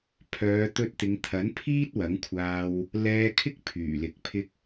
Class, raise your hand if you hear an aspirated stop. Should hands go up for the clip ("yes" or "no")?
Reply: yes